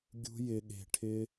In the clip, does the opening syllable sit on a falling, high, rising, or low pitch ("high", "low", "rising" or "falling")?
high